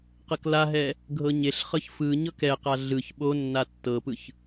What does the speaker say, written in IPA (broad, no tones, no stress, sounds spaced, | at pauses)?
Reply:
q ɤ k l a ɦ ɛ | ɡʱ ɤ ɲ e ɬ χ ɤ ç f ɯ ɲ ɤ k ɛ q a ɮ ɯ ç ɓ o nː a tː ɤ p ɯ ç